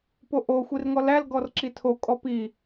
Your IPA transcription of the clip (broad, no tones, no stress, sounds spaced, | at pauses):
p o ʔ o xʷ i r ŋ ɔ l æ l ɡ ɔ r ǁ i tʰ o kʼ ɔ p i